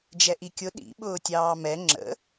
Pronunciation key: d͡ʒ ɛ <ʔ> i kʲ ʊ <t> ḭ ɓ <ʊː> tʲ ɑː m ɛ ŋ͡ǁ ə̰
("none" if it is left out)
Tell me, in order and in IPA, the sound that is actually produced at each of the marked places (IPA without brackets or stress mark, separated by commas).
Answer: ʔ, ɗ, ʊː